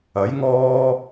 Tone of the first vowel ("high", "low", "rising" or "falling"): rising